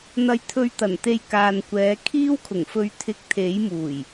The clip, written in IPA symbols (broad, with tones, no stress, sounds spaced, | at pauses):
n̪ ɐ˧ j t̪ʰ ɵ˧ ɥ t̪ ɐ˨˩ n t̪ e˧ j k aː˨ n kʷ ɛː˨˧ kʰ iː˥ w kʰ ʊ˨˩ ŋ f ɵ˧ ɥ t̪ʰ ɪ˧ k̚ t̪ʰ e˨˥ j m uː˨˩ j